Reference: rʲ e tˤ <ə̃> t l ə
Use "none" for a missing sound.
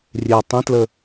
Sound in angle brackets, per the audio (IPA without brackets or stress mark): ə̃